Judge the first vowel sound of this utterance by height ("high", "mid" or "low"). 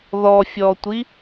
mid